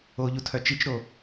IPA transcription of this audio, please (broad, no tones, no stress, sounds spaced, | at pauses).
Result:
o ʎ u tʰ œ t͡ʃ i t͡ʃ ɾ o